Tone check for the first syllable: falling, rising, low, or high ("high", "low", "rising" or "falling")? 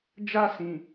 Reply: high